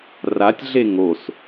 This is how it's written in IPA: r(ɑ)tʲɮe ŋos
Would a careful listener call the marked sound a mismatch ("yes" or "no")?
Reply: yes